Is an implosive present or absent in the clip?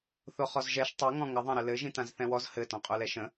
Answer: absent